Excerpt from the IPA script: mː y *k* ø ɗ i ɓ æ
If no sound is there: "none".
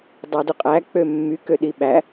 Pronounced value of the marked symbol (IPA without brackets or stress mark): k